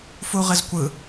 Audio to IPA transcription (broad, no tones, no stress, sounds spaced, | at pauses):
f u ʁ ɪ z kʷ ɯ